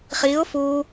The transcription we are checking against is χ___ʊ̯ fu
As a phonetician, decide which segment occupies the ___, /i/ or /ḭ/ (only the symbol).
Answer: i